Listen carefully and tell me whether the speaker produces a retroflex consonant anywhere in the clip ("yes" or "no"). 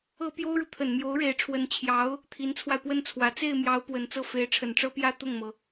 yes